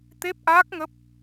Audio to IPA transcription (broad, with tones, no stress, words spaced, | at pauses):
t̪e˦˥p̚ʔaː˦˥k̚ŋə˦˥p̚